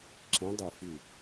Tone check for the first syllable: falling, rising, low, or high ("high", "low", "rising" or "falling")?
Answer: rising